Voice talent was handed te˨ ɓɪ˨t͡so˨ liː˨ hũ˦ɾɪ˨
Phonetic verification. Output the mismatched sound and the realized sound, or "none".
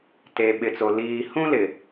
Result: ɾ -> l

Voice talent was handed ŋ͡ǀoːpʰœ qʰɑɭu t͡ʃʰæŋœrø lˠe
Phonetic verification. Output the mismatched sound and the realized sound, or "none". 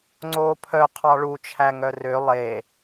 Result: none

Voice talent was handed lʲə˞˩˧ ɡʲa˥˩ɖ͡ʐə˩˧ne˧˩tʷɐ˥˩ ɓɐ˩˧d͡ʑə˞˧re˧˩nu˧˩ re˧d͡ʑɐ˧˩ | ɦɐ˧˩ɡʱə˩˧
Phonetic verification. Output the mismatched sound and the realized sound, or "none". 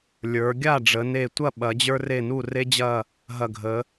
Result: none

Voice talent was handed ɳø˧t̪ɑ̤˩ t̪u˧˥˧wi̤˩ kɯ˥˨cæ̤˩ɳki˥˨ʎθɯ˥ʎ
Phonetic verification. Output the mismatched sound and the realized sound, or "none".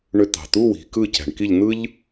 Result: θ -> n̪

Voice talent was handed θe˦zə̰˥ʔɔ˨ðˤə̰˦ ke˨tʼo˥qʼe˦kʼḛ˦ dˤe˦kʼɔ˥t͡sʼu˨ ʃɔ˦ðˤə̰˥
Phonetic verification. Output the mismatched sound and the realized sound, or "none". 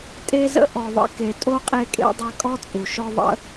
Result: θ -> tʼ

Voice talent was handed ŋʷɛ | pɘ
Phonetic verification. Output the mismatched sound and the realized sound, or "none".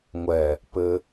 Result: none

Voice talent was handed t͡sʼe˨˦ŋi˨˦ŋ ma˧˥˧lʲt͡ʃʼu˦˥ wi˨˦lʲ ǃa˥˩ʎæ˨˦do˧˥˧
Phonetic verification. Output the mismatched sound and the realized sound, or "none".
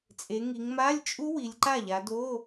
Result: æ˨˦ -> a˨˦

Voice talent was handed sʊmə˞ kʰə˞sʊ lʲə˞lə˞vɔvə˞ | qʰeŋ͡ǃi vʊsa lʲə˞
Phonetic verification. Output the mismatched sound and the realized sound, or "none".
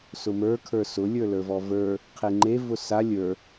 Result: i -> e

